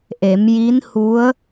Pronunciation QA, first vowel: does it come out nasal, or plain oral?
oral